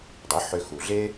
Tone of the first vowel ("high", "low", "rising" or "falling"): rising